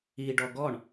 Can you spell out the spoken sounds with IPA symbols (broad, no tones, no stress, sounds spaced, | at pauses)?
i ɖ ɔ ɡ ɔ ɳ